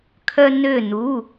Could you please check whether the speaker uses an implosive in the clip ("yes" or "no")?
no